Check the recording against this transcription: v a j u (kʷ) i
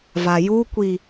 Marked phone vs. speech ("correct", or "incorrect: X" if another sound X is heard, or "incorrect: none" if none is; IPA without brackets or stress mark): correct